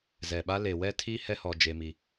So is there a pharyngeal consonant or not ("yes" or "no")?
no